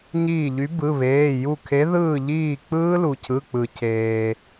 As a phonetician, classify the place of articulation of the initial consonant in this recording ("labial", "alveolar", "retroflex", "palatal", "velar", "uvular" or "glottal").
palatal